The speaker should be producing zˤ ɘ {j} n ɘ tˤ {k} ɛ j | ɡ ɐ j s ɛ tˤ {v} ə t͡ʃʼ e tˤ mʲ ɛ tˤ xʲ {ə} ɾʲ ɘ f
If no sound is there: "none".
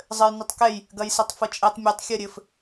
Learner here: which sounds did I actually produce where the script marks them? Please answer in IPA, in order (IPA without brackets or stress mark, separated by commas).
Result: j, k, f, ɐ